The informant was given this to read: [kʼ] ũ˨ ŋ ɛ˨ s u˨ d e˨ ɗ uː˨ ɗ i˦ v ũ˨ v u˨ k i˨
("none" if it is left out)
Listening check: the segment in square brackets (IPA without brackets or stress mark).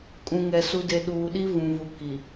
kʼ